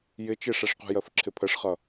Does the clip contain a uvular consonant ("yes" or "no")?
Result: yes